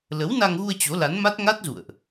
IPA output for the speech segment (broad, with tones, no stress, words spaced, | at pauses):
lə˨˦wna˧ŋɣu˧ə̯ t͡ɕo˨˦la˨˦nma˦˥t̚ ŋa˦˥t̚zṵ˧˨ə̯ʔ